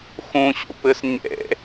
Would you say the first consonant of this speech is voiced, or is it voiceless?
voiceless